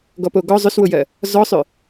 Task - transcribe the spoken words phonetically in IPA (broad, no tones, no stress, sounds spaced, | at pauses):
ɡ ɔ p o ɡ ɔ zˤ ʏ s w ʊ j ɜ | z ɔ sˤ ʏ